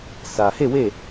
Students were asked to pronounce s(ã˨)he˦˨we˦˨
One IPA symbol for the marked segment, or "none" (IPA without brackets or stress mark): ä˨